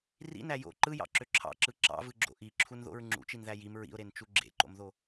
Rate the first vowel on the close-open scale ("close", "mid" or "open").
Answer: close